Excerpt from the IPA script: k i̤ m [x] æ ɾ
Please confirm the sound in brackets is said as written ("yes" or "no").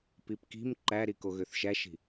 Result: no